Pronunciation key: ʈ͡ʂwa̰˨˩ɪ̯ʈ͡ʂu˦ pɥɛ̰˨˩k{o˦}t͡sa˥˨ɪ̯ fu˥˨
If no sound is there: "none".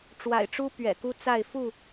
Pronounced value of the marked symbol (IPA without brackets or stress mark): u˦